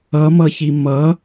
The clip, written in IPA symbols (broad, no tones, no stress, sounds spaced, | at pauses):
ʌ m ʌ ç i m ʌ